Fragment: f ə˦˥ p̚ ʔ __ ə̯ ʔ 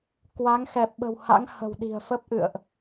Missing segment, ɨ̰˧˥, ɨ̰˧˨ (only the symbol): ɨ̰˧˨